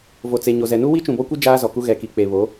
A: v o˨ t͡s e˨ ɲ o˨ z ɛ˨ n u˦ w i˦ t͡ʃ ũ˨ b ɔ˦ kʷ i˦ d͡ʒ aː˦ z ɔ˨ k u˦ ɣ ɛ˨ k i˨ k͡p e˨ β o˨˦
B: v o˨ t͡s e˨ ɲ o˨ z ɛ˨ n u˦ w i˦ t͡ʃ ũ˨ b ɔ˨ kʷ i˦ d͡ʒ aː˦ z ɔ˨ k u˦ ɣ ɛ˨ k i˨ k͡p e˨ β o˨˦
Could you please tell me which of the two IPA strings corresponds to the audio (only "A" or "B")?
A